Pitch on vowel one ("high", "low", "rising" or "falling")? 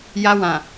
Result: low